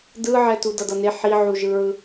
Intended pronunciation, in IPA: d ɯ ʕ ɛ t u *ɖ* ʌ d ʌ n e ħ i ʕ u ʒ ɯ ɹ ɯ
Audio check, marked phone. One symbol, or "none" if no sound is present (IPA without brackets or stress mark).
d